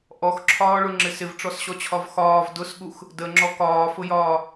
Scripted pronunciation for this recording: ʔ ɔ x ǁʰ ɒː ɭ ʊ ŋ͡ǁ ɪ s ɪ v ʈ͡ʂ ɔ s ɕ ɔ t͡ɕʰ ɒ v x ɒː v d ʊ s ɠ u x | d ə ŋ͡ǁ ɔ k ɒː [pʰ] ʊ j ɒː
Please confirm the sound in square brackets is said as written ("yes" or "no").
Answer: no